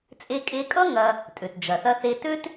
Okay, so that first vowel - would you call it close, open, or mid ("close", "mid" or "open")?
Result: mid